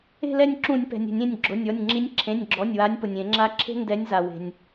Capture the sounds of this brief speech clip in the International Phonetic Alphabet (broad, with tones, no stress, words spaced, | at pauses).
e̤˦˨lɛ˦˨nʲǁũ˧˩˧nʲpɛ̤˩nʲ ɛ̤˧˩˧nʲẽ˩˧˩nʲɡ͡ǁʊ˩˧˩nʲɔ˩˧˩nʲ ŋ͡ǁi˨˦nʲǁʰẽ˩˧˩nʲɡ͡ǁɔ˩˧˩nʲwa˨˦nʲ pʊ˩nʲẽ˧˩˧ŋ͡ǁa˦ ǁʰe̤˦ndɛ˨˦nʲza˩ we̤˩nʲ